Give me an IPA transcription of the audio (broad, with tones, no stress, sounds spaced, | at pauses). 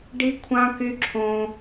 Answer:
ɖ i˦ kʷʰ ã˦ k y˦ ǁʰ õ˦